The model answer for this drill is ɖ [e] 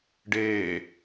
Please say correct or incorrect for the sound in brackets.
incorrect: eː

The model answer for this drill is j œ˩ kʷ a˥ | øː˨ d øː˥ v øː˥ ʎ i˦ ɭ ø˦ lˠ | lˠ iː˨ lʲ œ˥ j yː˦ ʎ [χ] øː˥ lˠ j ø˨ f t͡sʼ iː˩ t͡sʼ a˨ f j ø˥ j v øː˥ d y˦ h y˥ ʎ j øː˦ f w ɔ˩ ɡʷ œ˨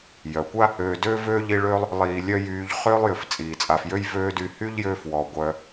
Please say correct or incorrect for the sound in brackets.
correct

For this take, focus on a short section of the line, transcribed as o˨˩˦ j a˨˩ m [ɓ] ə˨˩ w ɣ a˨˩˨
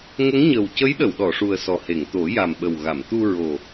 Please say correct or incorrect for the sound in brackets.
correct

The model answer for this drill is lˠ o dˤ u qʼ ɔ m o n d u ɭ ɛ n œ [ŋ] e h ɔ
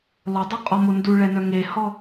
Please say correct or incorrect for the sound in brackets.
correct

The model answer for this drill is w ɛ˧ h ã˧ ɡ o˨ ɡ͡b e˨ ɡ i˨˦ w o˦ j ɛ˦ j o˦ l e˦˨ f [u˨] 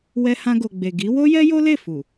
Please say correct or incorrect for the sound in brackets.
correct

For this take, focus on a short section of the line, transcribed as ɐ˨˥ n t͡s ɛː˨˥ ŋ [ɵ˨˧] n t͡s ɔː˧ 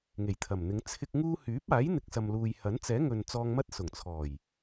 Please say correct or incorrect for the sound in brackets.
incorrect: ɵ˨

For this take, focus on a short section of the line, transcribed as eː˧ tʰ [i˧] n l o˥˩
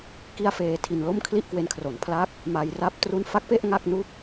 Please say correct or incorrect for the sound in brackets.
correct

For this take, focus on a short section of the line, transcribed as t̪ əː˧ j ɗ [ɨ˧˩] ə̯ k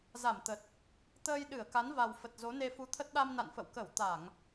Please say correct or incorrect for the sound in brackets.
correct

